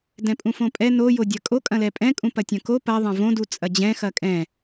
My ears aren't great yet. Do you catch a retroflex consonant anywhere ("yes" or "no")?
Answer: no